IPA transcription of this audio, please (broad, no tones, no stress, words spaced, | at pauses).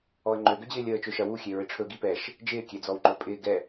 ɔə̯ŋ͡ǃø ɡød͡ʑɪːlʲəː t͡ʃøʃɐ wuxʲe ɹɪʈ͡ʂʰɵɡi pɛʃ | d͡ʒɪːkʲe d͡zɔwŋ͡ǃɵpʼɪː ɡɛ